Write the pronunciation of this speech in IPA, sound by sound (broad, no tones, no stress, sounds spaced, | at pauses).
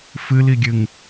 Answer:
f ɨ l i ɡʲ ɨ ŋ